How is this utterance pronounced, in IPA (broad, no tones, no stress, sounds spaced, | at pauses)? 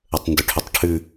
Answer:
ə tˤ n d ʏ ʈʰ ʏ tˤ ʈʰ ʉ